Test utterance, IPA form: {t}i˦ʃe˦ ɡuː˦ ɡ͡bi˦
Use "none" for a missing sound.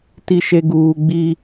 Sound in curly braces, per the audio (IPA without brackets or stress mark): t